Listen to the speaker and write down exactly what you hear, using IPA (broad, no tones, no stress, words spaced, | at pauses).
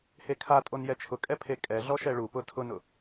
hekʰatʼon jɛt͡ʃʰʊkʼɛpʰe kʼɛɮɔʃɛ ɭupʊ tʰʊnʊ